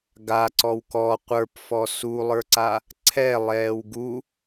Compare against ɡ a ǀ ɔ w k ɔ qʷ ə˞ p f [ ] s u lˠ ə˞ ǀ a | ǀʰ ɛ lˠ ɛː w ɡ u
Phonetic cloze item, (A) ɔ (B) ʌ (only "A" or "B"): A